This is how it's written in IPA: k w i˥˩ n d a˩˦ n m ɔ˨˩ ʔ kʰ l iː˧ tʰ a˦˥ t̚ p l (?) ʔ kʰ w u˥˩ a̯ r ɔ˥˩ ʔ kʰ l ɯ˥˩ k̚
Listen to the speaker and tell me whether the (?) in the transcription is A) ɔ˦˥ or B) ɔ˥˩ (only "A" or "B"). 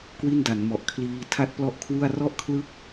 A